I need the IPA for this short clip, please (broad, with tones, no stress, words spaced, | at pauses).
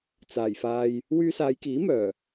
t͡saː˨˩jfaː˧j | wyː˧saː˨˧jkiː˨˥ mœː˨˩